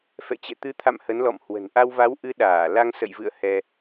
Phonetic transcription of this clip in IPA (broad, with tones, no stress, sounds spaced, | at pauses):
f ɛ̰˧˨ t͡ɕ ɛ̰˧˨ t̪ ɨ˨˦ t̪ʰ a̰˧˨ m h ə˨˦ n l ɔ̰˧˨ m h w ə̤˨˩ n ʔ a˧ w v a˨˦ w ʔ ɨ˨˦ ɗ aː˧˩ l a˧ ŋ s ə̰˧˨ j v ɨ̰˧˨ ə̯ h ɛ˧